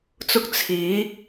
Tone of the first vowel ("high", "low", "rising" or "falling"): high